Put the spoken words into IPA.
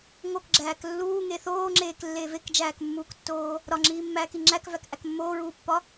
ŋ o k ɡ͡ǁ æː k lː uː ŋ e θ oː ŋ͡ǁ eː k lː eː v e k d͡ʒ æː k mː uː k tː oː | ɾ ɒ ŋ͡ǁ iː mː æː k i ŋ͡ǁ æ k v æ k ʔ æ k mː oː ɹ uː pː ɒ

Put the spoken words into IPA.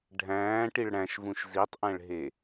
ɖʱ æ̃ː ʈ i ɭ ɽ æ̃ ʃ v ũ ʃ z i tˤ ʔ æ̃ ɭ ɦ e

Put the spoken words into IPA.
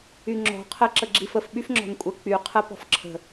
y ŋ͡ǁ ɔ̤ qʰ ə ǁ ə ɡ͡ǁ i f ə f ɓ y f ŋ͡ǁ ɔ̤ n kʷʼ ə k͡p y qʰ ə p ɔ̤ f ǁʰ ə̤

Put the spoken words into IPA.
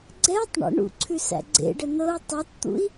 ɡ͡ǀ ɛ tˤ ɳ ə̰ ɳ ṵ ǀʰ ʉ s æ̰ ɡ͡ǀ ḛ ɖ ə n ɤ u̯ tˤ ɛ t t̪ ṵ i̯

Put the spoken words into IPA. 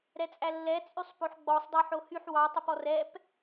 ɾ ɛ t͡sʼ æ lː ɛ t͡sʼ y sˤ p o ħ ɡ͡b ɔ sˤ dˤ ɑ ħ o h y ħ w ɑ tˤ ɛ p ɔ r ɛ p

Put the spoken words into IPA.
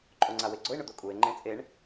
ǃʼ o ŋ͡ǀ a w e ɡ͡ǀ ʊ e̯ ɳ ʊ d̪ o kʼ u e̯ ŋ͡ǃ ẽ t͡sʼ e ɳ

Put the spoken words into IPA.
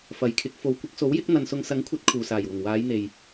f ɐ˨ j kʰ ɪ˨˥ k̚ f o˨ w kʷ ɪ˧ k̚ s o˨˥ w j ɪ˨˥ k̚ n̪ ɐ˨ n s ʊ˨ ŋ s ɐ˨˥ ŋ kʷʰ ɐ˨˥ t̚ kʰ uː˨ s aː˨˩ j w ʊ˨˩ ŋ w aː˨˧ j n̪ e˨ j

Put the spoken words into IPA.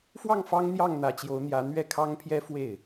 f w ɑ˥˩ ŋ f ɑ˥ ŋ n̪ j ɑ˥˩ ŋ n̪ ä˧˥ t͡ɕ j o˧˥ ʊ̯ n̪ j ä˧˥ n̪ ɥ ɛ˥˩ kʰ ɑ˥ ŋ pʰ j ɛ˥ f w e˥˩ ɪ̯

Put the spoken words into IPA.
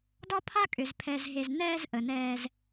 d ɒ˦ pʰ a˦ kʼ ʏ˨ z pʰ ɛ˨ z ɦ e˨ z n ɛː˧ z ʔ ə˨ n ɛː˧ z

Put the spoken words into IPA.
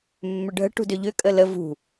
mː ʏ ɖʱ ə̤ ʈ ṳ d ʏ ʎ ʏ kʼ ə l ə v ṳ

